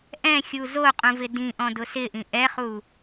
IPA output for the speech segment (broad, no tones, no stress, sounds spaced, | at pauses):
ʔ ɛ̃ xʲ u z o qʼ ũ v ɪ d ĩ ʔ ɔ̃ d ʊ s ɪ ʔ ĩ ʔ ɛ χ u